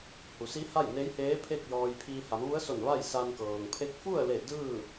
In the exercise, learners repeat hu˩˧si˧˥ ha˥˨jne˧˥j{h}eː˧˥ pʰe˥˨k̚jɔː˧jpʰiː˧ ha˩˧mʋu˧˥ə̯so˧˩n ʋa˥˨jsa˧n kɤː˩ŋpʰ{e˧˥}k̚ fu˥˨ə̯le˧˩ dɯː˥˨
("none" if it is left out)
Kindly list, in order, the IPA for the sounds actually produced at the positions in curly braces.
h, e˧˥

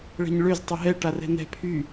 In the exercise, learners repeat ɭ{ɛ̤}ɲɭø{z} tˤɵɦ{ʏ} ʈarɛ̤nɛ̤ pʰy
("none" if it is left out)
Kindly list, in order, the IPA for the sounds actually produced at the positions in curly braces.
ɛ̤, z, ɛ

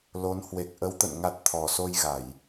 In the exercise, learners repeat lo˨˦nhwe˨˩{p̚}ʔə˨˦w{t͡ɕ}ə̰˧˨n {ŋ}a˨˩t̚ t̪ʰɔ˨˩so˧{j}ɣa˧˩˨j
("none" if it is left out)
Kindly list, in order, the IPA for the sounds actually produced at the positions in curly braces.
k̚, t̪, ŋ, j

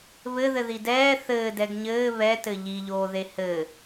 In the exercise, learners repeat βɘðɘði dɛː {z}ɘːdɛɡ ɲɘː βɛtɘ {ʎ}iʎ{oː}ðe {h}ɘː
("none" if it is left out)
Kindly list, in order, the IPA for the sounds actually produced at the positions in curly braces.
θ, ʎ, oː, h

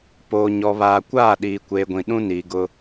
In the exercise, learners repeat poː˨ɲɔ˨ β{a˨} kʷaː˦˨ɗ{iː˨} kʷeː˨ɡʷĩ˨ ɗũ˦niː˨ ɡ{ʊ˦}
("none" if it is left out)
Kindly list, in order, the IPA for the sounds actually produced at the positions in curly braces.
aː˨, iː˨, ʊ˦

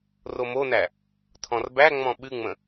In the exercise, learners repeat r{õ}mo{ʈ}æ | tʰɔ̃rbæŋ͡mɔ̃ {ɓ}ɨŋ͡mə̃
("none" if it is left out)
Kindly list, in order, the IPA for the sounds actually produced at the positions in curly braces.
o, n, ɓ

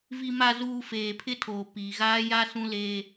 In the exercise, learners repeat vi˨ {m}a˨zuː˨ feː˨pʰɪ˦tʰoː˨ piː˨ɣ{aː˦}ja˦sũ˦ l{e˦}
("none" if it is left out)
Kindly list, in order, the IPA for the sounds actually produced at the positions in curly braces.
m, aː˦, e˦

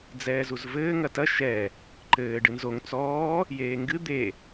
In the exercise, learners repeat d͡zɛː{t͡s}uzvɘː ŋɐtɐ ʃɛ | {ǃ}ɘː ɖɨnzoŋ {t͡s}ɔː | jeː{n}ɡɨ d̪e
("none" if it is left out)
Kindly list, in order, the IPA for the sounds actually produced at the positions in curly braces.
z, ǃ, t͡s, ŋ

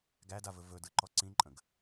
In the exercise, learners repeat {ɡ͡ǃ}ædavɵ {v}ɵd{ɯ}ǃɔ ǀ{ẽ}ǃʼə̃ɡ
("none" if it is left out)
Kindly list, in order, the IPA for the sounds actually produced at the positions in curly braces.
ɡ, v, ɯ, ĩ

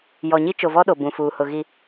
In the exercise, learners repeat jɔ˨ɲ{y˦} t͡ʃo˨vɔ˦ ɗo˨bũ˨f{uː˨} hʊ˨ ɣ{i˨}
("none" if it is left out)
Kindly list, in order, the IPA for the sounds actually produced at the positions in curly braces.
i˦, uː˨, i˨

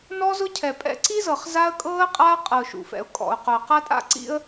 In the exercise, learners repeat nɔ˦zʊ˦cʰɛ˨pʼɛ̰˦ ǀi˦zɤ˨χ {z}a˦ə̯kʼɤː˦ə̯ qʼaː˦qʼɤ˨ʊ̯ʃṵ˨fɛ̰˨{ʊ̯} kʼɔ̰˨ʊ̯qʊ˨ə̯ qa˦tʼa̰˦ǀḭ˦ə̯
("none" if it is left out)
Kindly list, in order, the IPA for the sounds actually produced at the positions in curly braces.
z, ʊ̯

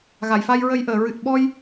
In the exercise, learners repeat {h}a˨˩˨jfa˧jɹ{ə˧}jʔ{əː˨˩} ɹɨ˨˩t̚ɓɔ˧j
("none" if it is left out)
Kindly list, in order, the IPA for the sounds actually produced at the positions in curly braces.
ɣ, ə˧, əː˨˩˨

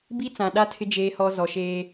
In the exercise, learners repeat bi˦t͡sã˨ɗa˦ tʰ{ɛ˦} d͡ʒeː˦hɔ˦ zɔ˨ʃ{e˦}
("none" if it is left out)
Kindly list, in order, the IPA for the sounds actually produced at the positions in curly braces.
ɪ˦, eː˦

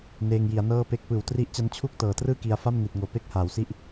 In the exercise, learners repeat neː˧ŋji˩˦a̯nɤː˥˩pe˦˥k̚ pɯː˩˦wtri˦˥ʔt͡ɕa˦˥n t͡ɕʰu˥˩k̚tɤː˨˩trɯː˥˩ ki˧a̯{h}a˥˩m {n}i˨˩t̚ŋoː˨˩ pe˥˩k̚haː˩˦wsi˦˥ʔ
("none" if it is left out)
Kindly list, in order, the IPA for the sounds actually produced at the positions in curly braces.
f, n

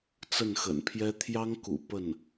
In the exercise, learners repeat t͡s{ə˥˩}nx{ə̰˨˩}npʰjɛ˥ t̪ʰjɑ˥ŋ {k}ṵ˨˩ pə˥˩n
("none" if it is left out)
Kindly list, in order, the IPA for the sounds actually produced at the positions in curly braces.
ə˥˩, ə̰˨˩, k

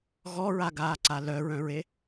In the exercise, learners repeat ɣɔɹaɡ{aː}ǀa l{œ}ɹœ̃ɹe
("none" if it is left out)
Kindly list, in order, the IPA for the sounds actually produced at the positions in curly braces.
aː, œ

